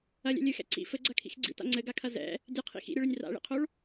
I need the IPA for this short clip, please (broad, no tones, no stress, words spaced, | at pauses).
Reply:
ɐlʲɛ̰ lʲɨxɛ̰ ǀḭ fɘɡ͡ǀɐkʰḭx ɡ͡ǀḭta̰ ŋ͡ǀɘɡakʰɐ zɛ̰ | dʲɨqʰḭ xḭɾʲɘɭɘnʲ ra̰ɭḭqʰoɭ